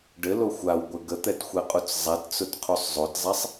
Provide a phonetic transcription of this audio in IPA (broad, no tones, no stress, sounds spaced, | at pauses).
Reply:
ɖ ɘ l o xʷ a w ɡʷ ɘ ɡ ə t̪ ɛ t xʷ ɛ qʼ u t͡s zˤ ɛ t t͡s ʊ t qʰ u sˤ zˤ o t zˤ ɛ sˤ